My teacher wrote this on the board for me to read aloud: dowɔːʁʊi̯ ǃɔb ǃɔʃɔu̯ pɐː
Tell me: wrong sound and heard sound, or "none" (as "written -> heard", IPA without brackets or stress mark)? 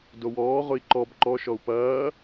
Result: none